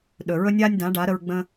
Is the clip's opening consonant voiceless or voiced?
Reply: voiced